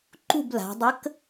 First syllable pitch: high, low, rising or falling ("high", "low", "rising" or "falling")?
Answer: falling